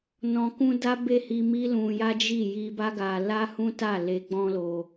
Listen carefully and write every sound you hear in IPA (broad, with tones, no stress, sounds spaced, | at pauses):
n ɔ̃˨ k ũ˧ d a˦ b e˦˨ h i˧ m i˦ l ũ˧ j a˦ d͡ʒ i˦˨ j i˧ b a˦ ɡ a˧ l a˦ h ũ˦ t a˦˨ l e˧ ɡ͡b ɔ̃˦ l o˧